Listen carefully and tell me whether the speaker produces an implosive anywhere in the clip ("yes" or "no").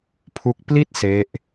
no